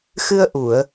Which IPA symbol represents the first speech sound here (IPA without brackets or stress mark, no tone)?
x